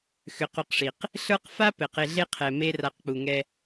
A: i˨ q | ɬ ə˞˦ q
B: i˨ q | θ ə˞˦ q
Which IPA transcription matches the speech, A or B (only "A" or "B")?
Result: A